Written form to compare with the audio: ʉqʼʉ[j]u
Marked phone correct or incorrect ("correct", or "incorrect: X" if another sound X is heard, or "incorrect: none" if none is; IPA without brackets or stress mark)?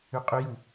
correct